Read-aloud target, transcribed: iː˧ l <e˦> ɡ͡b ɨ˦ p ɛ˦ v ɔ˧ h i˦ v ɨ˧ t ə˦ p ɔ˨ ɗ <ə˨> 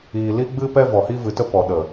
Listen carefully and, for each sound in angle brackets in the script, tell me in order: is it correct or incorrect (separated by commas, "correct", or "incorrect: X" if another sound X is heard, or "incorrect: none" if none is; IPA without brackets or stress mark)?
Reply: incorrect: i˦, correct